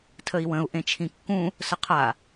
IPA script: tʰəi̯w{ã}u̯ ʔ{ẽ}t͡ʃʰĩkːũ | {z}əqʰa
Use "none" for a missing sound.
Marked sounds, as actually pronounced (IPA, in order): ə̃, ẽ, s

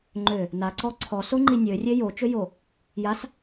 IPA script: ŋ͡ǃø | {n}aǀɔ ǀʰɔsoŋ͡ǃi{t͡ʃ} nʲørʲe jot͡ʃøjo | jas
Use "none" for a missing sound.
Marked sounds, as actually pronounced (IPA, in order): n, none

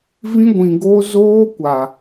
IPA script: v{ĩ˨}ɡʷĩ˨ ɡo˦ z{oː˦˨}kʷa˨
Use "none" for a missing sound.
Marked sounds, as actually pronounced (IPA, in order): ĩ˦, oː˦

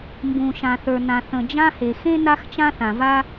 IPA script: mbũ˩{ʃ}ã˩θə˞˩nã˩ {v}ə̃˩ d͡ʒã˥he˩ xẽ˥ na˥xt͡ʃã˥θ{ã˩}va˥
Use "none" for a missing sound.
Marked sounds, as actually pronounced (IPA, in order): ʃ, θ, ã˩

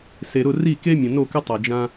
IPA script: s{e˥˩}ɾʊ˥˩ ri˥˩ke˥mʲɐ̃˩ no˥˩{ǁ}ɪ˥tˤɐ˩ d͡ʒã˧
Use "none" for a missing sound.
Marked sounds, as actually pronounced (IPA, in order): e˩, k

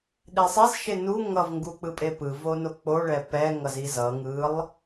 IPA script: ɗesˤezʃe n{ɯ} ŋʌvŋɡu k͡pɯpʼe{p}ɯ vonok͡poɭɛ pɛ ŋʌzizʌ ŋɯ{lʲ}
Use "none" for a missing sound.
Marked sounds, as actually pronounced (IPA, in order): u, p, lˠ

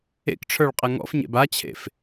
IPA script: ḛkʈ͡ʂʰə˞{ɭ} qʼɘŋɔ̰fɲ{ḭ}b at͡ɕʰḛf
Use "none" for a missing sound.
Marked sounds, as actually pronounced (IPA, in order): ɭ, ḛ

